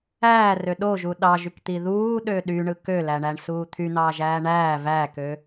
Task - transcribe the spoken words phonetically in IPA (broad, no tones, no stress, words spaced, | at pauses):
æːrø ɗoʒu ɗɑʒykt̪i ðuːɗø ɗyɳɯ kølæɳæɳsuː t̪ʰyn̪ɑːʒæː ɳæː vækø